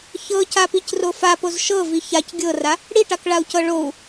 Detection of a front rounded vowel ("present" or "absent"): absent